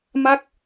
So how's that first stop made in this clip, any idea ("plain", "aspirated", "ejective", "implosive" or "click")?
plain